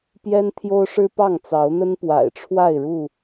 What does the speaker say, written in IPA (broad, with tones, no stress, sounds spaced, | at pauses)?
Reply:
p j ɛ˦ n t̪ʰ j o˦ ʊ̯ ʂ ɻ̩˦ p ɑ˥˨ ŋ t͡s ɑ˨˦ ʊ̯ n̪ ə˦ n p w a̰˨˩ ɪ̯ ʈ͡ʂʰ w a˥˨ ɪ̯ ɻ u˥˨